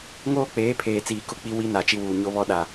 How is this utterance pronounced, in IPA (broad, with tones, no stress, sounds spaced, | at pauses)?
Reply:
ŋ oː˦ k͡p eː˨˦ pʰ eː˨ t͡s iː˨ k ʊ˦ k͡p i˦ w i˦ n a˨ t͡ʃ i˦ w uː˨ ɲ o˦ β ɔ˦ ɗ a˨